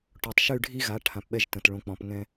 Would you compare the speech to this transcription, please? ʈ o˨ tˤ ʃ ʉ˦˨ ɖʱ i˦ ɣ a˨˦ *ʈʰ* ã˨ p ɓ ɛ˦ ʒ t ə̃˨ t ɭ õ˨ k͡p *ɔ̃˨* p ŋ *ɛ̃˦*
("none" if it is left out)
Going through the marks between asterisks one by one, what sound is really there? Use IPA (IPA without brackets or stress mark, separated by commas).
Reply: ʈʰ, ɔ̃˨, ɛ̃˦